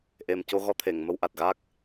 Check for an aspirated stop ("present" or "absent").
present